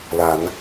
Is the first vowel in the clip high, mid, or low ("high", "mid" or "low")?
low